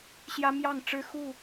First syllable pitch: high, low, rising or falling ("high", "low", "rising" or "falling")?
high